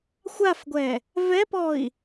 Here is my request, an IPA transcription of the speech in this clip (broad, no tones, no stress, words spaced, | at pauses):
xʷafɡʷɛ | vɛpɔi̯